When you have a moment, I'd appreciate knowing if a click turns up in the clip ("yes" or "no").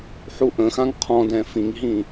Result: no